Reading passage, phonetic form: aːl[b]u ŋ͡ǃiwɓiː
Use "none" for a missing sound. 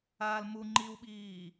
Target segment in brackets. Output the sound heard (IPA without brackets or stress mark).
m